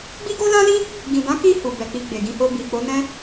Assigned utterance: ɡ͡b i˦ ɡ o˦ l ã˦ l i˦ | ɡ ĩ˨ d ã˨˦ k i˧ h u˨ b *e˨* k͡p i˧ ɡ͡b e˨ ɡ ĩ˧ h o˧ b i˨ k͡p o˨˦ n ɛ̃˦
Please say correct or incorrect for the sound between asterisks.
incorrect